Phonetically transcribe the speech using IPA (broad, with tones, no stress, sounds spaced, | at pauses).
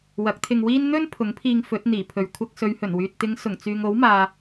w ɐ˨˥ k̚ t̪ʰ ɪ˧ ŋ w iː˥ n n̪ ɵ˥ n pʰ ʊ˨˥ ŋ pʰ iː˧ ŋ f ɵ˨˥ t̚ n̪ iː˨˩ pʰ ɵ˨ ɥ kʷʰ ɐ˧ k̚ s ɵ˨˧ ɥ h ɵ˨˩ n w yː˨ t̚ t̪ ɪ˨˧ ŋ s ʊ˨˩ ŋ t͡s yː˨ ŋ o˨˥ w m aː˨